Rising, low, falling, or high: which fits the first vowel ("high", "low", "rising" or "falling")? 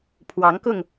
rising